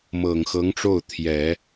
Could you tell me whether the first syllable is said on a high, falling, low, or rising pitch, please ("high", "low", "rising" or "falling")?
low